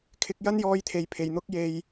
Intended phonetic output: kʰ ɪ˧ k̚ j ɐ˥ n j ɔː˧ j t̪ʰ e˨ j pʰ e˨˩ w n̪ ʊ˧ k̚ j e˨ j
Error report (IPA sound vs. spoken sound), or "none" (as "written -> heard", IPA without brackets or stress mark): w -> j